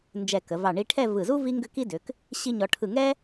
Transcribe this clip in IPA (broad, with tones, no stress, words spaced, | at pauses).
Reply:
nd͡ʒɛ˧˩kə˩˧vɑ˧˩ ɳi˧ʈʰɛ˥˧ vɯ˧˩zu˥ vi˥ŋɡʏ˥ki˥ dʏ˩˧k | ɕi˥ɲɔ˧ ʈʰɯ˧˩ŋɛ˥